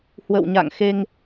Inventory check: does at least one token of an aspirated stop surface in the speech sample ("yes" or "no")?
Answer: no